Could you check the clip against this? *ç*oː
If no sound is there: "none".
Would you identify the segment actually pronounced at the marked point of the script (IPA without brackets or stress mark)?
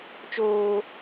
t͡ʃ